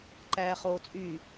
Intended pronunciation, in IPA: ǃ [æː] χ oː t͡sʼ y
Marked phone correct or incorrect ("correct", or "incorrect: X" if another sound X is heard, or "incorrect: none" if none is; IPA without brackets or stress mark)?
correct